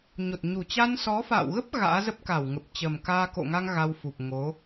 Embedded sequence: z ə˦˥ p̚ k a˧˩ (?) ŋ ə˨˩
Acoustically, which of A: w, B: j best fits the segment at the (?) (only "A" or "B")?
A